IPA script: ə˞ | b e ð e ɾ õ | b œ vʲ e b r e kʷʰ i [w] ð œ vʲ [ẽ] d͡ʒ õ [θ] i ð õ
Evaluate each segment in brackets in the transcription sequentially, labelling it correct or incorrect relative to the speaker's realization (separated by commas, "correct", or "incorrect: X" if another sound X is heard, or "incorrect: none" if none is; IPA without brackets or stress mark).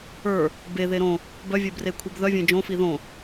incorrect: b, correct, incorrect: f